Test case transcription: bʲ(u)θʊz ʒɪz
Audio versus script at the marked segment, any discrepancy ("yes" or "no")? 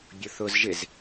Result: yes